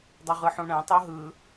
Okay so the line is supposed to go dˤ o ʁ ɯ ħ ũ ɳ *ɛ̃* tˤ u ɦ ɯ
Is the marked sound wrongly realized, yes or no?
no